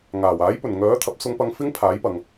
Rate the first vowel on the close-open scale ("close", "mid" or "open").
open